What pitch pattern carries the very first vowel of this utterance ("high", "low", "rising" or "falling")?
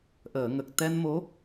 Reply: low